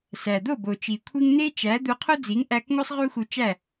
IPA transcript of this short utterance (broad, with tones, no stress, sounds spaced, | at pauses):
s æ˩ d̪ o˥˩ b o˩ t͡ʃ i˩ kʷʰ i˥ ŋ n̪ e˥ t͡ʃ æ˩˥ d̪ u˧ qʰ o˥ d͡z i˩˥ ŋ ʔ æ˧ k ŋʷ æ˥ sˤ ʁ u˥ x u˧ t͡ʃ æ˥˩